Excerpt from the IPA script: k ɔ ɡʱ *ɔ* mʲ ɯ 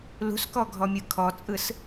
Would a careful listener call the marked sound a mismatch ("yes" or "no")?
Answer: no